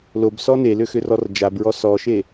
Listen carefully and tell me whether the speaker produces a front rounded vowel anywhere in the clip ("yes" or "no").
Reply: yes